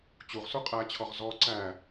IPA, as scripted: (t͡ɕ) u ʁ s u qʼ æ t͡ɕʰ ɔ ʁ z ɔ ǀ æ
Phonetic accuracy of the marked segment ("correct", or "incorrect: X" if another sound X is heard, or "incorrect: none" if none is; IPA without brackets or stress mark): correct